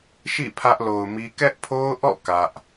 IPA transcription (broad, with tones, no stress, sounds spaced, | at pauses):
ʃ ḭ˦˨ pʰ ä˦ ʔ l o˨ ʊ̯ m i˦ k ɛ˦ ʔ pʰ o˦ ʊ̯ ʔ ɔ̰˦˨ k ä˦ ʔ